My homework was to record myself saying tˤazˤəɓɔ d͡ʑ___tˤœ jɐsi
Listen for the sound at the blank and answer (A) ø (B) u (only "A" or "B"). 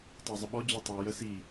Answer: B